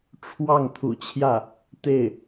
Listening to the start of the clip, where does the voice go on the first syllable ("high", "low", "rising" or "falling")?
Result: falling